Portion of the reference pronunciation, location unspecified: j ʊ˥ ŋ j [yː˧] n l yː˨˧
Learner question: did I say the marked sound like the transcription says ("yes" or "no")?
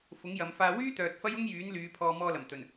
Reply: no